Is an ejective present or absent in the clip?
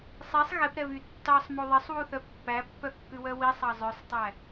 absent